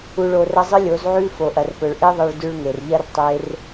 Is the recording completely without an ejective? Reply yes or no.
yes